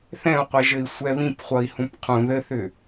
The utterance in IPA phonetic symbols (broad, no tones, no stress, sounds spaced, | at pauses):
θ ɛ̃ u̯ qʷ ɛ ʒ ɘ i̯ sʷ ɛ β ĩ p χʷ ʌ i̯ h ũ p qʰ ũ ð ɘ θ ʏ